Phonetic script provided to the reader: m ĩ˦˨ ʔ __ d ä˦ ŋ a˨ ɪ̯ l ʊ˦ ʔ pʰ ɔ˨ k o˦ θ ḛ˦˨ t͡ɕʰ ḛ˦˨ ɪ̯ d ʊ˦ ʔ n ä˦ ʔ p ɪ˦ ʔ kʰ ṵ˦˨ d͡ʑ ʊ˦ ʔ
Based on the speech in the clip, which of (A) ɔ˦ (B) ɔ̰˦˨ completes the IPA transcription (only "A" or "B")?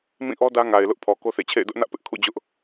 A